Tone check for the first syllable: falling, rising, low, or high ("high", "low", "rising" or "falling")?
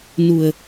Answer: low